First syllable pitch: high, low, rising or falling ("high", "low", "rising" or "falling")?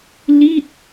falling